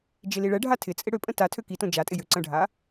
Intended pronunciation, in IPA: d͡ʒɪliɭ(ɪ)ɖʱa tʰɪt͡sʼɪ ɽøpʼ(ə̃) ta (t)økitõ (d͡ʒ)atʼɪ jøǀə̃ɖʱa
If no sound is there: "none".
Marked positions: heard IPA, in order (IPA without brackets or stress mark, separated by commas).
ɛ, ə̃, tʰ, d͡ʒ